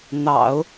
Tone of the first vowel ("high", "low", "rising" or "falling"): low